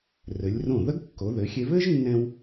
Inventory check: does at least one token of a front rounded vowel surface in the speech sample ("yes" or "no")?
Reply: no